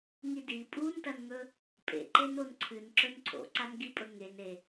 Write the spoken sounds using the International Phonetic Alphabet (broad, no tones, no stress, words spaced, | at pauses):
ŋidi pʼuntɐnŋɵ | pʼḛǃen onǀʰɨnǁɵn ǀʰo̰ǀan ɡipʼɵŋen e